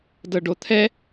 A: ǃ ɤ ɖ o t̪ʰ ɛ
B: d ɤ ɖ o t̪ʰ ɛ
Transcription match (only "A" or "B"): B